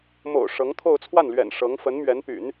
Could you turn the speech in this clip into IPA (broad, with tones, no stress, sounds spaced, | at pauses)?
m o̰˨˩ ʊ̯ ʂ ɤ˧˥ ŋ t̪ʰ o˥˧ ʊ̯ t͡sʰ w a˥˩ n l ɥ ɛ̰˨˩ n ʂ ɤ˧˥ ŋ f ə˧˥ n m ɥ ɛ˧˥ n p y̰˨˩˦ n